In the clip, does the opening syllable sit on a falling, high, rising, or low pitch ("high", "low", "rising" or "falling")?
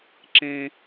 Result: high